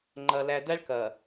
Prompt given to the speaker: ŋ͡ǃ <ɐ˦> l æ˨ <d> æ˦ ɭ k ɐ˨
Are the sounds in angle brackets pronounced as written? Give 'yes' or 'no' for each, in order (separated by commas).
no, yes